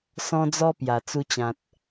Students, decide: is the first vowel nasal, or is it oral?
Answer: nasal